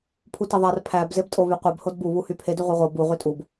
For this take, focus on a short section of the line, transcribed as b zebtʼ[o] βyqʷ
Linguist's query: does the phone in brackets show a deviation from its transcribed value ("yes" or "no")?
no